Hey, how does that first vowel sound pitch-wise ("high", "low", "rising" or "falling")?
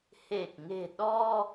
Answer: low